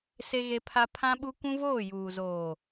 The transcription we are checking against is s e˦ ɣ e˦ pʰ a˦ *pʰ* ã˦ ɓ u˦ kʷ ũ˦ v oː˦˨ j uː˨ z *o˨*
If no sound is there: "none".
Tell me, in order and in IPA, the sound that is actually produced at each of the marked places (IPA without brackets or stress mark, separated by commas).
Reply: pʰ, oː˨